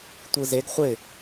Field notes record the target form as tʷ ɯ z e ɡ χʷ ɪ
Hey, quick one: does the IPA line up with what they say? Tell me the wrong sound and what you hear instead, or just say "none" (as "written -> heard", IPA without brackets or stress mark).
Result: none